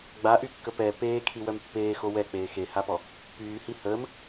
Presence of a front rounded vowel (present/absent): present